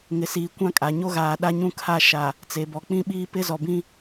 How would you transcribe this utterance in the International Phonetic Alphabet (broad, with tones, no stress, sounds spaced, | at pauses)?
ŋ ɪ˨ s iː˨ kʷ ã˦ kʼ a˨ ɲ o˦ ɣ aː˨ ɗ a˦ ɲ ũ˦ kʰ a˦˨ ʃ a˨ | t͡s e˨ b ɔ˨ k͡p ĩ˦ ɓ iː˦ p ɪ˦ z ɔ˨ b ĩ˦